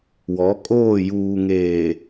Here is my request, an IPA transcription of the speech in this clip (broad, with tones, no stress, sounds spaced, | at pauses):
w ɔ˨˦ kʼ oː˦˨ j uː˨ ŋ eː˨